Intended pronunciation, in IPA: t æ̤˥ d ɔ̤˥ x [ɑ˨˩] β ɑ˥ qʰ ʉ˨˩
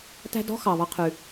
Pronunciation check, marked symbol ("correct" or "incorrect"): correct